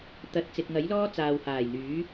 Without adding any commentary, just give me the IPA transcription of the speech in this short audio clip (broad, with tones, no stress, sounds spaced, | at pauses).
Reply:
t̪ ɐ˨ t̚ t͡s ɪ˨ k̚ ŋ ɐ˨˥ j l ɔː˥ t͡s aː˨ w h aː˨˩ j n̪ yː˨˥